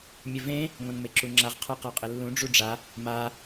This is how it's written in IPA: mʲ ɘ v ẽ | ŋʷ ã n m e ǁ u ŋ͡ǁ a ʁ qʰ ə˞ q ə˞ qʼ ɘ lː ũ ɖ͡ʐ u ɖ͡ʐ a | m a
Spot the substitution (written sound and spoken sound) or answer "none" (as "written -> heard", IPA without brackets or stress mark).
none